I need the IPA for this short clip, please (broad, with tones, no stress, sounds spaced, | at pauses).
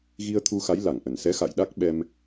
ɣ i˧ ə̯ t̪ʰ u˧ x a˨˦ j l a˧˩ ŋ ʔ ə˧˩ n s ɛ˨˦ x a̰˧˨ j ɗ a˦˥ k̚ ɓ ɛ˧ m